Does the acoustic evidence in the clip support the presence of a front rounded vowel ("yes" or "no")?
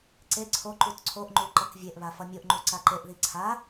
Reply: no